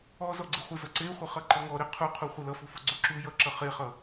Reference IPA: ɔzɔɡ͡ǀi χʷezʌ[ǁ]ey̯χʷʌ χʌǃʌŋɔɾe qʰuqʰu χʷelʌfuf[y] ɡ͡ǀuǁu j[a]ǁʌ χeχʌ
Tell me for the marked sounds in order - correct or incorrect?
incorrect, incorrect, incorrect

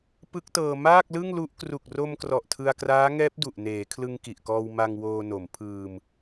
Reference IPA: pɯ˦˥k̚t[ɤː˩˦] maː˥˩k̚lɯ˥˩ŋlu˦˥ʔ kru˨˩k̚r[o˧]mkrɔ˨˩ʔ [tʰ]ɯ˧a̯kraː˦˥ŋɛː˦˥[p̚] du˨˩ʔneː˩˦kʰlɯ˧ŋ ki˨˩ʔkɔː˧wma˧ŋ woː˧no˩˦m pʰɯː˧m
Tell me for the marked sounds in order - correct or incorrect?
incorrect, correct, correct, correct

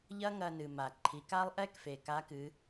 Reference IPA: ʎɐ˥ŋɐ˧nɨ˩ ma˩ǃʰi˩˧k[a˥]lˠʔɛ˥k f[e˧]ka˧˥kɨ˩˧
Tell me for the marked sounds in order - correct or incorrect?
correct, incorrect

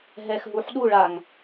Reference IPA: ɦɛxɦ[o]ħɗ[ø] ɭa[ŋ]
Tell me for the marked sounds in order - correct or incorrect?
incorrect, incorrect, correct

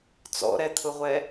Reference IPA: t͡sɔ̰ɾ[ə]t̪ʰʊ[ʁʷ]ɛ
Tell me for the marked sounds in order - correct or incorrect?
incorrect, correct

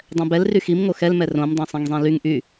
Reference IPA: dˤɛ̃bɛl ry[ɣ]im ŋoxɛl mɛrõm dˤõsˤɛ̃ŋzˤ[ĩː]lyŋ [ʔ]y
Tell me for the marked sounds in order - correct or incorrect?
incorrect, incorrect, correct

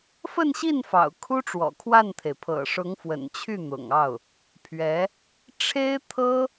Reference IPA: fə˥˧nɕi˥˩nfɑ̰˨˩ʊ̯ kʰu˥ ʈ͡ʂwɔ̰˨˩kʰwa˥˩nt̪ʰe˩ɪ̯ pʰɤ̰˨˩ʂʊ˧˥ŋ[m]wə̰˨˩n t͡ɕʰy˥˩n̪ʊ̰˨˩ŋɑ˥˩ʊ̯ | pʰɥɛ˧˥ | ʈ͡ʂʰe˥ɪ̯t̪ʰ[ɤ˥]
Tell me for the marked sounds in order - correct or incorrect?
incorrect, correct

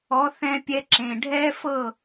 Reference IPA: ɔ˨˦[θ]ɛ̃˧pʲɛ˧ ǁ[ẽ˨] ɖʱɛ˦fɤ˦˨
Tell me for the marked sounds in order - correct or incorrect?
correct, correct

